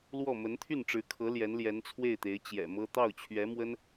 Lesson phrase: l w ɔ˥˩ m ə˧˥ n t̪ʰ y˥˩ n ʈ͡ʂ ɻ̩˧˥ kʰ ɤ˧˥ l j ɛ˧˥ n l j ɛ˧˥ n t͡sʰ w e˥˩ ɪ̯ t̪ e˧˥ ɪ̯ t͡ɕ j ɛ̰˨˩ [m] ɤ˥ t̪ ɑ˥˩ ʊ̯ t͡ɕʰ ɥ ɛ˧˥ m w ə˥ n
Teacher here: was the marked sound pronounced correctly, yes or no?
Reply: yes